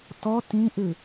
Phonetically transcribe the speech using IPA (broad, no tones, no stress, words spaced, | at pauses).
tɔ tĩʔɨ